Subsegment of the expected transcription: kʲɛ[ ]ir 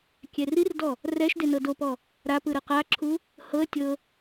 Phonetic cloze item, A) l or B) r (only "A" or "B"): B